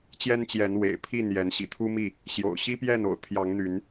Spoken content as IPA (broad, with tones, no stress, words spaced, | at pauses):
t͡ɕjɛ˦nt͡ɕjɛ˨˦n wḛ˨˩ɪ̯pʰi˥˨n jɛ˨˦nɕḭ˨˩t̪ʰu˦mi˥˨ | ɕjo̰˨˩ʊ̯ ɕi˦pjɛ˥˨no̰˨˩ʊ̯t̪ʰjɑ˨˦ŋ n̪y˨˦n